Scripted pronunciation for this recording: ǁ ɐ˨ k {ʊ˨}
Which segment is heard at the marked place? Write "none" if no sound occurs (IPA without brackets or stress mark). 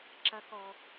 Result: ɔ˨